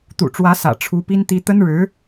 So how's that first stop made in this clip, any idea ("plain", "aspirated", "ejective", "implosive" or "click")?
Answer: plain